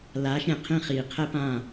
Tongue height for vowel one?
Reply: low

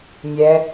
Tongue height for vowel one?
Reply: mid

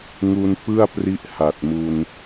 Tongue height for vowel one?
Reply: high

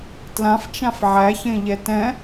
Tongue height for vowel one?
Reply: low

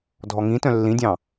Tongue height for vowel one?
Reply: mid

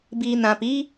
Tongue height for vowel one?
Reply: high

